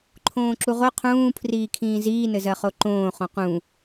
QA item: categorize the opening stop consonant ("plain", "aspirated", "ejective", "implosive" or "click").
click